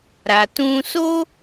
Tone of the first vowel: low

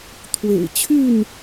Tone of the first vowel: low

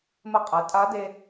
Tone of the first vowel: rising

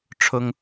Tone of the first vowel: high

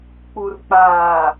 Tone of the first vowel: low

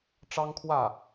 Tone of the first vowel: high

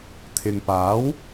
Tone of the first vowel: low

